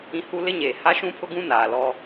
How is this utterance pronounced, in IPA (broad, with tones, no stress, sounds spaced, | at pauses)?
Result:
ĩ˦ h u˦ l ɪ˦ ɲ eː˨ h a˦ ʃ ũ˦ pʰ ʊ˦ ɡ ũ˦ n aː˨ l ɔ˦